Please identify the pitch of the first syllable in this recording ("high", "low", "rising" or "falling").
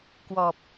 low